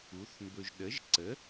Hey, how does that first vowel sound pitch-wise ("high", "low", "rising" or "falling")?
rising